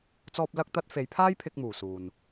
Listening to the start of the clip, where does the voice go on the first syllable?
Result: high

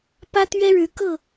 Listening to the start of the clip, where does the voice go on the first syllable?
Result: high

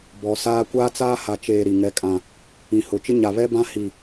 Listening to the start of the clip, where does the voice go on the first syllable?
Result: low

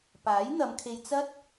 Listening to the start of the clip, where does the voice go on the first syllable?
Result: rising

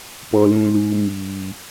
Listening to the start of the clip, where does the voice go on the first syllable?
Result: low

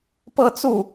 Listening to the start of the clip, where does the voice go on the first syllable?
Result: falling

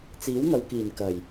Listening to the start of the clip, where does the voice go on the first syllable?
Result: rising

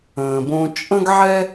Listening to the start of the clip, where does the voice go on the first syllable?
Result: low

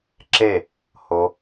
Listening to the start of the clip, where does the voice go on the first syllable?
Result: falling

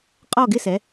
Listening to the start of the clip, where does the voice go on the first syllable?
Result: falling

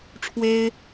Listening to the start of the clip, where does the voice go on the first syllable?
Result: high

